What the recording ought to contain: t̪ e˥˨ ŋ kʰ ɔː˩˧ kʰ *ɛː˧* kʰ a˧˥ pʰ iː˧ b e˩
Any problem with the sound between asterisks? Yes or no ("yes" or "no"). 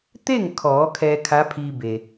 no